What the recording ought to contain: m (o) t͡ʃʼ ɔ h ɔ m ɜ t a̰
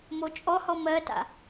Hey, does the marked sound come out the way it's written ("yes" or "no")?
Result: yes